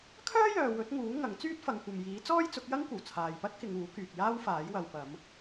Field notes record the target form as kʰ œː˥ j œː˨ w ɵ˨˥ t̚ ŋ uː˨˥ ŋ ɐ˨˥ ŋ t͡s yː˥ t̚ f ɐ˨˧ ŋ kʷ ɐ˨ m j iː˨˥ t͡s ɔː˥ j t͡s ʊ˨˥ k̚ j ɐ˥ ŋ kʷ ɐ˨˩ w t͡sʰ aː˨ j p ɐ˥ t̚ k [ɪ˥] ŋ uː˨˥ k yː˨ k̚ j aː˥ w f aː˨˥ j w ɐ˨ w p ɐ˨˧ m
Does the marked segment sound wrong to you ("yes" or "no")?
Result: yes